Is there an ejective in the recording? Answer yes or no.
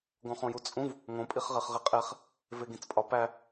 yes